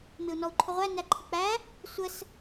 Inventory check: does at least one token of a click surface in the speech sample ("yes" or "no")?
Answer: yes